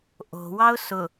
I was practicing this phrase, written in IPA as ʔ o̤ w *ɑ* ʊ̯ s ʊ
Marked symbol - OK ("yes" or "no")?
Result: yes